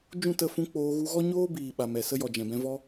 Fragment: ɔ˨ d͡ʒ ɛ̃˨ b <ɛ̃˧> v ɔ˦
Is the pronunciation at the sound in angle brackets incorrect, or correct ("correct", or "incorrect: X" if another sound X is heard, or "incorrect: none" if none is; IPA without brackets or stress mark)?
correct